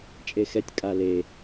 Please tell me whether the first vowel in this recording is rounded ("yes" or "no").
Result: no